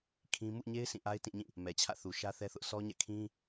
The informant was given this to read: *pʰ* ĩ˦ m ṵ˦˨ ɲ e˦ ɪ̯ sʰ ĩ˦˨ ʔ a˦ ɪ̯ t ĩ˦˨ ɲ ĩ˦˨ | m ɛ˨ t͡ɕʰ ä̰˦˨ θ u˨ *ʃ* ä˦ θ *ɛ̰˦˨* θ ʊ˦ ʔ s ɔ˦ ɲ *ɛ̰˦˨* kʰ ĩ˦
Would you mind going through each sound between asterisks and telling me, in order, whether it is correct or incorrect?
incorrect, correct, incorrect, correct

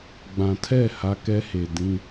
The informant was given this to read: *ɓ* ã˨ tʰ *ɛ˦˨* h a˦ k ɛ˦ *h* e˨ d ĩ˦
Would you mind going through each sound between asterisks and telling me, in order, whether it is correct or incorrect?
incorrect, correct, correct

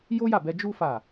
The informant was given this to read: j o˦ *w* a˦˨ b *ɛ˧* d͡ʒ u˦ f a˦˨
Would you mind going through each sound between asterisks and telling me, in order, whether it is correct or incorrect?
incorrect, correct

